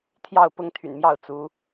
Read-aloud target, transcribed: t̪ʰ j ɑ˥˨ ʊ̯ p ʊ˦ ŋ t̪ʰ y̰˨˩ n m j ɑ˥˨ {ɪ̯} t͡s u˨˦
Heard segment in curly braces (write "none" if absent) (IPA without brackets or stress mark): ʊ̯